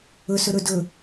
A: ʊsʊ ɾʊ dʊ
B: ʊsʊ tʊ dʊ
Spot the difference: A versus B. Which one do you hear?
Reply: A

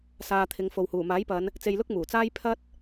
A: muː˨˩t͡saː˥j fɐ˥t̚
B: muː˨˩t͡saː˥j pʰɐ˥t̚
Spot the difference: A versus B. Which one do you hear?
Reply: B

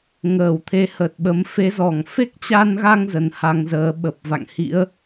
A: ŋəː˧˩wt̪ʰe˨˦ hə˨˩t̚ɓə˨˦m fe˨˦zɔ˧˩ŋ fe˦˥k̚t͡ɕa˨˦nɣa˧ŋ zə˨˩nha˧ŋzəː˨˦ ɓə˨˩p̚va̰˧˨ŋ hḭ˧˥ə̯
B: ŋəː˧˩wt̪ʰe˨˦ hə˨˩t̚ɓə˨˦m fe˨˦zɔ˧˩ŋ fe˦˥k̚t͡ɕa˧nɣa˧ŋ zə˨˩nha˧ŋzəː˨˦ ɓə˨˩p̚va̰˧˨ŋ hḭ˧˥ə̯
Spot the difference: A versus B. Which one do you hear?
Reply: B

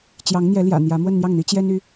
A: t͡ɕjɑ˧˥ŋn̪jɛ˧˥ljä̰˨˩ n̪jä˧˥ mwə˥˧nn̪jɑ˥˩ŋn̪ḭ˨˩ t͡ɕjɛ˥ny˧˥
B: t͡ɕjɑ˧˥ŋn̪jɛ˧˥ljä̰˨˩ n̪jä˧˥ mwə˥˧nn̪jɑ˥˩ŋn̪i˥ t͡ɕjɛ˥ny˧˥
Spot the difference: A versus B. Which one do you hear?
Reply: B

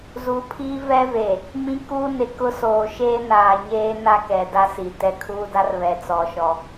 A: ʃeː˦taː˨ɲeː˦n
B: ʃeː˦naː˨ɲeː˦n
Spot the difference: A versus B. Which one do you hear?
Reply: B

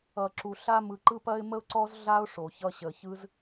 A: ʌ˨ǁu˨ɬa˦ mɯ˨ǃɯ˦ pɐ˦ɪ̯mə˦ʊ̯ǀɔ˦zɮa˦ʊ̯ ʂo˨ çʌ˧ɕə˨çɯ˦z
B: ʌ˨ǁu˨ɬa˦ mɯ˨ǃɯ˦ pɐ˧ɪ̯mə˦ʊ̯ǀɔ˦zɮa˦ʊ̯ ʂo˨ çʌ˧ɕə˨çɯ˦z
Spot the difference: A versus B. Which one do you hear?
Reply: A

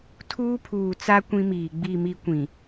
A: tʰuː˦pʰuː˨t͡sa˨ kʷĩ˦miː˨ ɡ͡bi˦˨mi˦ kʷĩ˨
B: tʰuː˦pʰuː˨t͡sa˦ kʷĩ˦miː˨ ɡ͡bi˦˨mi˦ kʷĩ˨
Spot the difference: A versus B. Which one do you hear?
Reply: B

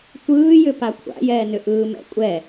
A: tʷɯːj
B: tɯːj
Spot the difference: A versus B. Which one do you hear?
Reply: A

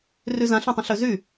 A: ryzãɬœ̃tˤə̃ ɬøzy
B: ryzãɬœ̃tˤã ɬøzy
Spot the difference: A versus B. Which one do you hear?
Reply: A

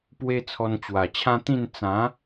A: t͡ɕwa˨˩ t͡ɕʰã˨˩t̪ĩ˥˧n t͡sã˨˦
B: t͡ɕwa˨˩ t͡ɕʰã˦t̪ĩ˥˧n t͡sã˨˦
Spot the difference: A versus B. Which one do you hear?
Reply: B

